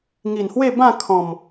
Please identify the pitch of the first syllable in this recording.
low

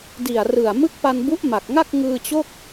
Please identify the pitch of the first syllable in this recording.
low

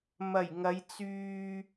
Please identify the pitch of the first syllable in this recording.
low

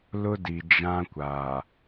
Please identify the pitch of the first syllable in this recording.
high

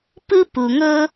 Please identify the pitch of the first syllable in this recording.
high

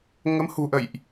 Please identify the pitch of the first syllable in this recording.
rising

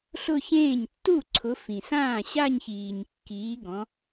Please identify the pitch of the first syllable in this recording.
falling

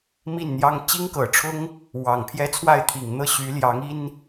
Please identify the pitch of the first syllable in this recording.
falling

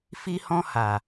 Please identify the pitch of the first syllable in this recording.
high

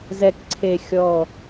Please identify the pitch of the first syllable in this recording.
low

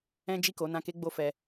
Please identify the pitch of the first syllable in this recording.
high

